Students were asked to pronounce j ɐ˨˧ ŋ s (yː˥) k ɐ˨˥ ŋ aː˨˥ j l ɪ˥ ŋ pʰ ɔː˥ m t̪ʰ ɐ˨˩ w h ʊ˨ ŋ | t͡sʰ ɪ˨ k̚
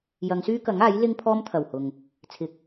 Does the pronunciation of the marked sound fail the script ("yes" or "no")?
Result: no